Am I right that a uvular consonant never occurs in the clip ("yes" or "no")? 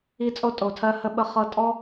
no